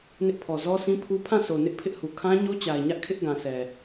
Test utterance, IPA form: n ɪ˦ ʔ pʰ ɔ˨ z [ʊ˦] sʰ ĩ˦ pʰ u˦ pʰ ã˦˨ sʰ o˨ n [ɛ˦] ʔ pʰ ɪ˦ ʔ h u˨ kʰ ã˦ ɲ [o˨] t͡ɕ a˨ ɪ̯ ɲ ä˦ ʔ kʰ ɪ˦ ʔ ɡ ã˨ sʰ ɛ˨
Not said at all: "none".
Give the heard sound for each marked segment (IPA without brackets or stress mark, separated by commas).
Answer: ɔ˦, ɪ˦, o˦